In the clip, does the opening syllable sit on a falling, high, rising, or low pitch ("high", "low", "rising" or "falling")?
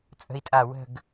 high